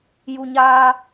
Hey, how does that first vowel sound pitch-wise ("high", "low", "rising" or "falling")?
low